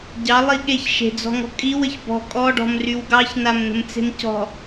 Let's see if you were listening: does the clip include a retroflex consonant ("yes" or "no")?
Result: yes